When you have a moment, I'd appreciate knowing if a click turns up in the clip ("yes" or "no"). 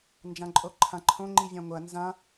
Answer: yes